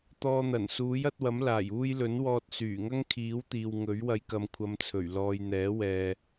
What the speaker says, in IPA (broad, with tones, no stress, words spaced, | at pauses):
t̪ɔː˨n̪ɐ˨˩n suː˨˥jɐ˨˥t̚wɐ˨˥m laː˨˩j uː˧jlɵ˨˥n wɔː˧t̚syː˨˩ŋɐ˥ŋ kʰiː˨˥wt̪iː˨w ŋɵ˨˥ɥ wɐ˨˧jkɐ˨mkʷʰɐ˨˧mt͡sʰɵ˨˩ɥ lɔː˨jn̪ɛː˨˥wɛː˨